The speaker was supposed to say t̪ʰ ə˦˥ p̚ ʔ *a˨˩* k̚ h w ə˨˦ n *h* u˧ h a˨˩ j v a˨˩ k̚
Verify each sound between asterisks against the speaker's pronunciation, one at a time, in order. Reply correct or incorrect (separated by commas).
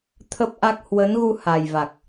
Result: incorrect, incorrect